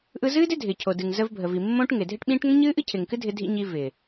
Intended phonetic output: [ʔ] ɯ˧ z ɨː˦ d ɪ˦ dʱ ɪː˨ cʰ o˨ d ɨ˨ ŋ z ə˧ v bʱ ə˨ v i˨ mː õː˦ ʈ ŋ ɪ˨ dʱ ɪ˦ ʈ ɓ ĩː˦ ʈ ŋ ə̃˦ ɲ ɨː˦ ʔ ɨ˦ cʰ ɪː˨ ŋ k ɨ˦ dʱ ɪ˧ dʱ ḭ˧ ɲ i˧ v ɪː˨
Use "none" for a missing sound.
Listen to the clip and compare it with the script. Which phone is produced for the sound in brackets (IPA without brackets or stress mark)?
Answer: ʔ